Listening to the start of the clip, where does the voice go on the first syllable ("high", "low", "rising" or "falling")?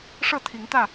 falling